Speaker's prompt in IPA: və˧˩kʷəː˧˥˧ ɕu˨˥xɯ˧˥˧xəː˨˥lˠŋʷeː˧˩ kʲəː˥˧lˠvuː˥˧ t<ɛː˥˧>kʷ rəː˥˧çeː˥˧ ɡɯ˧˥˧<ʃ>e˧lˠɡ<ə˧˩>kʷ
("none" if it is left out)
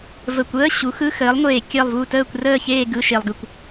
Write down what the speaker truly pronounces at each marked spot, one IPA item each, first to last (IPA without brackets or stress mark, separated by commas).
əː˥˧, ʃ, ɯ˧˩